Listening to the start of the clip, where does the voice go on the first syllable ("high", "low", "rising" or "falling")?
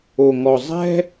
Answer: low